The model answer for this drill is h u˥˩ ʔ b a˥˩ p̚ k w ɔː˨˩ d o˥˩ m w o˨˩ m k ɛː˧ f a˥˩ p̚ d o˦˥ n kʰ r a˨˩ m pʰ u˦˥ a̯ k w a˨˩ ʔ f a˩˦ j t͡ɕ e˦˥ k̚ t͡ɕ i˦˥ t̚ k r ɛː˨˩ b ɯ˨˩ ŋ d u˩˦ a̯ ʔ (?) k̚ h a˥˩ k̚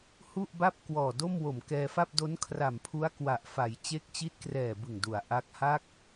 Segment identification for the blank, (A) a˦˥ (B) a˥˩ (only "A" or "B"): A